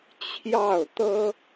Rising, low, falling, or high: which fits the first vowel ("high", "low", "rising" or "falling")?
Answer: falling